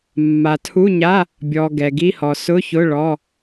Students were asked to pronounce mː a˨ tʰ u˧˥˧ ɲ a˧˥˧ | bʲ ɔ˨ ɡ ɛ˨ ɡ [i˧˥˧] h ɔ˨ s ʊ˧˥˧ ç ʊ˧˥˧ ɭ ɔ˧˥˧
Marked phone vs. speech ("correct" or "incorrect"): correct